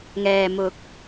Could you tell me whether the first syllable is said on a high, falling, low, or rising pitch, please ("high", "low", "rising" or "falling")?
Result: low